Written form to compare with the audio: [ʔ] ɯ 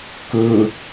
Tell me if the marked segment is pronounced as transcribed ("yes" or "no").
no